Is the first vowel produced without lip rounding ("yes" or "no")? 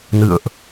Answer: yes